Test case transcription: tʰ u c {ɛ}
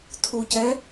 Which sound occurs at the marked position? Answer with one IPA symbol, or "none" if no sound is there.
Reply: ɛ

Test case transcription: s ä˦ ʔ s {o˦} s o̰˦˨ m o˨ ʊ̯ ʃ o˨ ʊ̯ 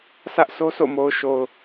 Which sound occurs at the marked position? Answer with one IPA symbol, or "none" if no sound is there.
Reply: o˦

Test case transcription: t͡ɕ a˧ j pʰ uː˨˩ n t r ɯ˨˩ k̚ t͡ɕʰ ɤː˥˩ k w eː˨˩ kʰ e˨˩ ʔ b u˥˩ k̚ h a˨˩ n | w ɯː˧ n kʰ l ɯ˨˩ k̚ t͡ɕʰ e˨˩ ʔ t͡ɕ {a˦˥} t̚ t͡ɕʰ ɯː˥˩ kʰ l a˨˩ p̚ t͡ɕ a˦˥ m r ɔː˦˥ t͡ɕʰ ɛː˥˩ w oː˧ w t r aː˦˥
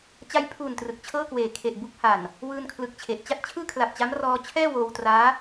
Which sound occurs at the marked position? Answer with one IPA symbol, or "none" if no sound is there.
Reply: a˥˩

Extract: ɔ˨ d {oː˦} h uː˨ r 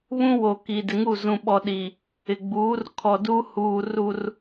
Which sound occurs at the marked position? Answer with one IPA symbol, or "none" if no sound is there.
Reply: uː˦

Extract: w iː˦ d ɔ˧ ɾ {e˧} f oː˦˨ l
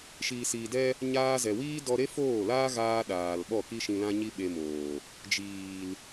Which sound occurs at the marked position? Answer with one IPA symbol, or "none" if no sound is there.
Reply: e˦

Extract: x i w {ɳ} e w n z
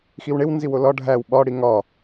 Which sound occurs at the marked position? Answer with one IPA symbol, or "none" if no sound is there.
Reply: ɳ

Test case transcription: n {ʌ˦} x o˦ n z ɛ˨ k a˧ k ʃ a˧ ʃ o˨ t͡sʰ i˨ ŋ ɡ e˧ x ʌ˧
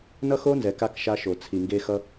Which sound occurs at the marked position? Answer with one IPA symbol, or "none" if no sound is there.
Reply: ʌ˦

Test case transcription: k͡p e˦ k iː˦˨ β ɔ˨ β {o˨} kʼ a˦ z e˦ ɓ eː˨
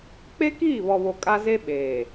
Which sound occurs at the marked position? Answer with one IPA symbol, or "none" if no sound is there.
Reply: o˨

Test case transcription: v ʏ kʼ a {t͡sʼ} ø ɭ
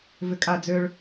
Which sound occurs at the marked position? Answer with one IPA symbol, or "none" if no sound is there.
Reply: d͡z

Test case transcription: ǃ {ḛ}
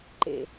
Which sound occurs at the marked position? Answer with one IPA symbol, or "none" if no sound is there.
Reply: ḛ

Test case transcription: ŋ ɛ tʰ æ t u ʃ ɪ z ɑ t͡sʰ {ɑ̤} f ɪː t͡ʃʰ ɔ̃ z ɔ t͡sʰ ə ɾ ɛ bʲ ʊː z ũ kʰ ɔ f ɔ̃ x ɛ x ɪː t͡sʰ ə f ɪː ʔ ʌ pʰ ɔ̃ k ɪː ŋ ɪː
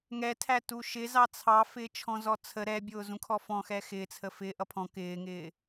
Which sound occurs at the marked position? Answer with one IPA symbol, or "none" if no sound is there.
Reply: ɑ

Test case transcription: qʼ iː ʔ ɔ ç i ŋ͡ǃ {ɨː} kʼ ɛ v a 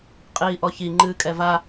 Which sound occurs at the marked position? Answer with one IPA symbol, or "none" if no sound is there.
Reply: ɨː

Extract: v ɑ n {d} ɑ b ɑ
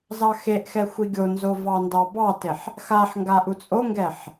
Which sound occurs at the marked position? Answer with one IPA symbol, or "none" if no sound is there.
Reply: d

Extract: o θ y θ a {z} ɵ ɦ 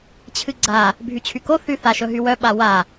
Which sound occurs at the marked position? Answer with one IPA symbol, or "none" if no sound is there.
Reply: ʃ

